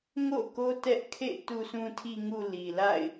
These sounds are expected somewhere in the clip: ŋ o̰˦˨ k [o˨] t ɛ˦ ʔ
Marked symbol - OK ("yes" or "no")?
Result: no